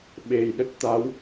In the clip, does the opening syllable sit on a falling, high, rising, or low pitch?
low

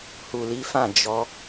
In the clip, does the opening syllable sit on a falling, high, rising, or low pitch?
low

